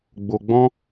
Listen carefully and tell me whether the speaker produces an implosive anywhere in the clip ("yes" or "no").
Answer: no